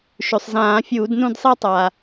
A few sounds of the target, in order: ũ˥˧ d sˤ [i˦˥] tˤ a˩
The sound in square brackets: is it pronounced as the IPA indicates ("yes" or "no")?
yes